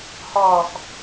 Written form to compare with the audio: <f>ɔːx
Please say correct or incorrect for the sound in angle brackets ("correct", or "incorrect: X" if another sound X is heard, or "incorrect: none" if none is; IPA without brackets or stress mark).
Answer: incorrect: h